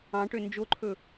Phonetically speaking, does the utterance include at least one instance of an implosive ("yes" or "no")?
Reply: no